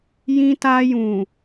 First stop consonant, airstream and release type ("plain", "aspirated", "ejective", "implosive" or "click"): plain